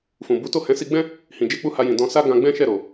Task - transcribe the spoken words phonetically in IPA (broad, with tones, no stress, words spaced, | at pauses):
fũ˨bu˨˦to˦˨ hɛ̃˨˦si˧ɡ͡bɛ̃˦ | hĩ˨d͡ʒe˧k͡pu˧ ha˧jĩ˨ dɔ̃˧sa˦ ɡã˧ɡ͡bɛ̃˦ʃɛ˦˨ɾo˨